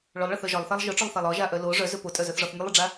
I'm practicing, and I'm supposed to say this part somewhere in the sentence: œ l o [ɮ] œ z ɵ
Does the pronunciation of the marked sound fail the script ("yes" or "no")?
yes